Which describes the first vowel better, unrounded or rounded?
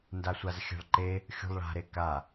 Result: unrounded